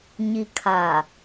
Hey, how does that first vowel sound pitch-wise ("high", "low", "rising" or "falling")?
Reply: low